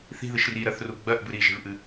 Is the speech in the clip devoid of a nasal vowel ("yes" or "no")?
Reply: yes